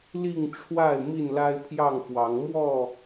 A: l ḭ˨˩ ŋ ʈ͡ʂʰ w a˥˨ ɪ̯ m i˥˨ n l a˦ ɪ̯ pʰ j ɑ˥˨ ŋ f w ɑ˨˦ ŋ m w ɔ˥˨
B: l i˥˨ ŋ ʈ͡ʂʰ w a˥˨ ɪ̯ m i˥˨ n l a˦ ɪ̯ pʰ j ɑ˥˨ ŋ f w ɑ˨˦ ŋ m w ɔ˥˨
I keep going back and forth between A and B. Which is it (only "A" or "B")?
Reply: B